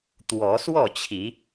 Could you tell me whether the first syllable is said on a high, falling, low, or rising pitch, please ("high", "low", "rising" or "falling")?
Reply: rising